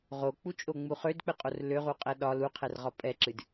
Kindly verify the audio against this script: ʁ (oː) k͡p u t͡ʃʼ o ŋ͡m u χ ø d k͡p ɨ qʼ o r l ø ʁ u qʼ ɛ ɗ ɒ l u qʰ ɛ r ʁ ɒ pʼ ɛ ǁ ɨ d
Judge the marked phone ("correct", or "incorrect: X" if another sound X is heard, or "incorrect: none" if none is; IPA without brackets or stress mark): incorrect: o